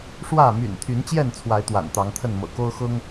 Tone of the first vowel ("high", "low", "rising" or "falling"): falling